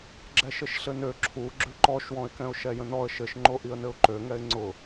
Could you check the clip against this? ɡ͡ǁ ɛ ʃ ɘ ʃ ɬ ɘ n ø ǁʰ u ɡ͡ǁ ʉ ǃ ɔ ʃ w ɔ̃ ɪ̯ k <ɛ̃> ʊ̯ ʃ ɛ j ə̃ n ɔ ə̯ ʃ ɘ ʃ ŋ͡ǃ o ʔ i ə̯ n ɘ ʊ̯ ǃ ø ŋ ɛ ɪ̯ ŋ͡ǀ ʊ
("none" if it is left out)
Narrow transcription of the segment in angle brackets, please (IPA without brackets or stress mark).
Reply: ɛ̃